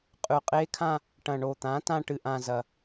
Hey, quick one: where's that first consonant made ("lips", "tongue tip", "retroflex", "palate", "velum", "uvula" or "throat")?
uvula